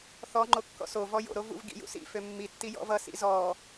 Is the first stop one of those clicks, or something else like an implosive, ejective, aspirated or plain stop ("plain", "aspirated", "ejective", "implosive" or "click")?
click